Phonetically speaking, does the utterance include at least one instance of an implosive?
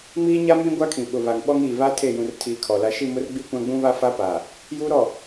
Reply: yes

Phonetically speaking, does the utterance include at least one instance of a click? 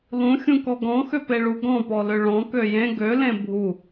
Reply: no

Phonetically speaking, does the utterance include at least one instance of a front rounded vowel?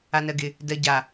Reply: no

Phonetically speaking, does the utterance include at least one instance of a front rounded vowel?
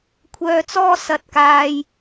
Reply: yes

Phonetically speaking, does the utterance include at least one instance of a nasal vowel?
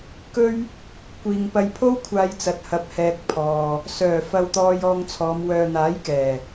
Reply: no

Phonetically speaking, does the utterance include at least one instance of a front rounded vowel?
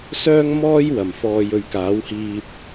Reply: yes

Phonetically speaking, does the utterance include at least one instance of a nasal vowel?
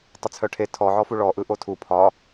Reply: no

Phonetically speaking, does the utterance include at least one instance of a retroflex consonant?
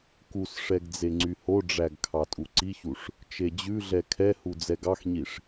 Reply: yes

